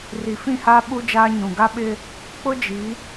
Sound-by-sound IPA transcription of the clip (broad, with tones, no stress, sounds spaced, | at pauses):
r i˨ f ĩ˦˨ h aː˦ ɓ u˦ d͡ʒ aː˦ ɲ ũ˨ ɡ a˦ ɓ ɪ˦ | k͡p ʊ˦ d͡ʒ i˨˦